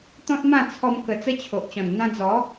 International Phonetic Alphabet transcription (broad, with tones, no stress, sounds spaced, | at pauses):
t̪ ɔ̃˦ t̚ m ã˥˧ t͡sʰ ɔ˧ m k ə˧ t͡s ə˦ t͡ɕʰ o˨ ʔ t͡ɕ ɔ̃˨˩ n n̪ ã˧ d͡z ɔ˨˦